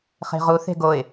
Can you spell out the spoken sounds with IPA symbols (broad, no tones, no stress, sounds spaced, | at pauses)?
χ e̤ ʁ u θ e̤ ɡ o ɪ̯